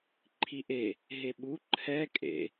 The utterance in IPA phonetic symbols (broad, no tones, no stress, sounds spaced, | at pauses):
ǃʰ i ʔ e | ɦ e ɓ u ǃʰ ɛ kʼ ḛ